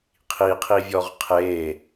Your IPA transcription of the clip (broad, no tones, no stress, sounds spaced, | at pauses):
qʰ i qʰ i vʲ ɔ ʁ qʰ e